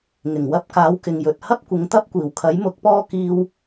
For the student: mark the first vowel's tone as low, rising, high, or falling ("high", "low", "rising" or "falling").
low